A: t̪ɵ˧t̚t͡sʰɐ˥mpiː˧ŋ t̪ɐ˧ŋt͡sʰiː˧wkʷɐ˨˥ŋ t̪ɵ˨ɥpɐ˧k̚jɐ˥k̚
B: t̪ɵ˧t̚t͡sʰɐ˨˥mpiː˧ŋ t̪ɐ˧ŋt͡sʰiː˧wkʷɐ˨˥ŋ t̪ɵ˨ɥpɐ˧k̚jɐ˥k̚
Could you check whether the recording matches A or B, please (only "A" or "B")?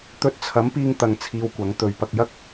B